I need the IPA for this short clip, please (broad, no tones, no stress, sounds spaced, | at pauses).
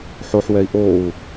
ħ o ħ w ɛ i̯ ʔ o u̯